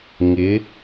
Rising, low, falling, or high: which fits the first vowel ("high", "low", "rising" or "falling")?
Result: rising